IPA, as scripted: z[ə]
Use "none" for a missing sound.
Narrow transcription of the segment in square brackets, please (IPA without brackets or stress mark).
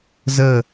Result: ə